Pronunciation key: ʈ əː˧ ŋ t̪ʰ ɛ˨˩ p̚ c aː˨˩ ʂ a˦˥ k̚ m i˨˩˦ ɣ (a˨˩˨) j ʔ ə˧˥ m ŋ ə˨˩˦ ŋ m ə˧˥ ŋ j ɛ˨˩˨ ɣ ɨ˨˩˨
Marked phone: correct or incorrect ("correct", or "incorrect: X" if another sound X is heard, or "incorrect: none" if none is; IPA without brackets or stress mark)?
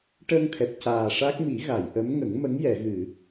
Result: correct